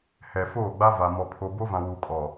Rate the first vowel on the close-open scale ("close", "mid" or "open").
mid